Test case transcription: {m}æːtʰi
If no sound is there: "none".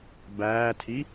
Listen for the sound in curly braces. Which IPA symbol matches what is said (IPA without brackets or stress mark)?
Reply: b